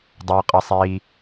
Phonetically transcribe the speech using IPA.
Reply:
dˤ ɵː˧ qʼ ɐ˧ sˤ iː˧

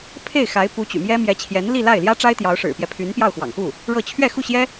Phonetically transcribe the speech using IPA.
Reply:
pʰ e˥˩ ɪ̯ x a˧˥ ɪ̯ p u˧˥ t͡ɕ y̰˨˩ m j ɛ˥ m j ɛ˧˥ t͡ɕʰ j ɛ˧˥ n l i˥˧ l a˥˩ ɪ̯ l j ä˥ ʈ͡ʂ a˥ ɪ̯ t̪ j ɑ˧˥ ʊ̯ ʂ ɻ̩˨˩ p j ɛ˦ pʰ y˧˥ n p j ɑ˥˩ ʊ̯ x w ɑ̰˨˩ ŋ x u˥˩ | ɻ ɤ˥˧ t͡ɕʰ ɥ ɛ˥˧ x u˥˩ ɕ j ɛ˥

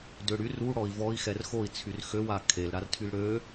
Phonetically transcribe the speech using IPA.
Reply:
d ø ɽ y r u ɽ ɔ i̯ v ɔ i̯ x ɛ r x o i̯ t͡sʰ y r x ø w a kʰ e l ɾ a r tʰ y l ɽ ø

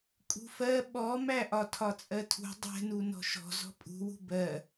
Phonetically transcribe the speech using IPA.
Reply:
kʼ ṳ f ɜ ɓ ɔ m æ ʔ ɒ tʰ ɒ t͡sʼ ɜ tʰ ṳ dˤ ɛ̤ n u n ɔ̤ ʃ ɔ̤ z ɔ̤ pʼ ṳ w ṳ b ɜ

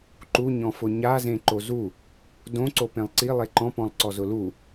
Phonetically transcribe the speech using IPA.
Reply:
ǃ u ɲ ɔ̃ f ʊ ɲ a z ẽ ǃ o z u | d õ ǀ o p ẽ lˠ ǀ i lˠ e ǃ ɔ̃ p ɔ̃ lˠ ǀ ɔ z ʊ l u

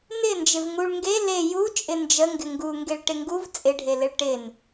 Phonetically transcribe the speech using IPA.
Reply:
n ɪ n d͡ʒ ɪ v ŋ u ɭ ŋ ɡ e l e j u t͡ʃʼ ɪ n d͡ʒ ə ŋ ɡ ɪ ŋ ɡ u ŋ ɡ e ɭ ʈ ɪ ŋ ɡ u v t͡sʼ ɪ ɖʱ e l ɪ ɭ ʈ ɪ n

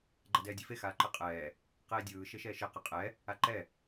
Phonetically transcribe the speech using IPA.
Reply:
ɡ͡ǃ a d ɛː dʲ e f e x aː ǃ ɯ qʼ ɛː | q eː dʲ ɯː ʃ e ʃ ɛː ʃ e q e qʼ ɛ | a ǃ ɛ

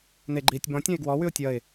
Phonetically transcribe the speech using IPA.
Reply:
n e ɡ͡ǃ iː tʲ b ɔ̃ tʲ ɔ̃ ɪ̯ ɡ w ɔ w ʉ ʊ̯ tʲ ʌ ɪ̯

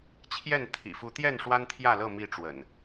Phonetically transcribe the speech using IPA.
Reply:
t͡ɕʰ j ɛ˥˨ n t̪ʰ ḭ˨˩ f u˨˦ t̪ j ɛ˥˨ n ʂ w a˦ n t̪ʰ j ä˥˨ l ɤ˥˨ m i˥˨ ʈ͡ʂ w ə̰˨˩ n

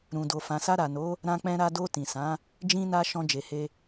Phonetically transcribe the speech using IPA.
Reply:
ɾ ũ˨ d o˨ f ã˨ s a˧ ɾ a˨ n o˨˦ | ɾ ã˧ k͡p ɛ̃˧ ɾ a˧ d o˧ t ĩ˨ s ã˨˦ | d͡ʒ ĩ˧ n a˧ ʃ ɔ̃˧ d͡ʒ e˨ h e˧

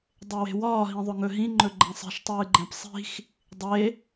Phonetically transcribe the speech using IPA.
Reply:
dˤ e w e̤ w ɒː ɦ ĩ ðˤ ɵ ŋ ɵ ɦ ĩ ŋ͡ǃ ɵ ɡ͡ǃ ɛ̃ sˤ i̤ ʃ tˤ ɨː ɡ͡ǃ ɛ̃ p sˤ i̤ x | dˤ e

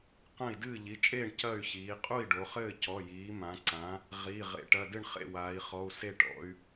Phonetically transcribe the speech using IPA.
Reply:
q ɐ̃˥˨ i̯ d ɨː˥˨ ʎ i˩˧˩ t͡ʃʼ eː˥˨ ɳ c ɐ˥˨ y̯ ç iː˩˧ qʼ u˥˨ i̯ ɖ o˩˧ χ ɘː˥˨ c ɔ˩˧˩ j iː˩˧ m ã˩˧ ǀ ã˩˧ | ʁ i˩˧˩ ʁ ḛ˩˧ ʈ ɐ˩˧˩ d ɨ˥˨ ɳ χ ḛ˥˨ w aː˩˧ i̯ χ ɔ˩˧˩ u̯ s e˥˨ ʈ ɔ̰˩˧ y̯

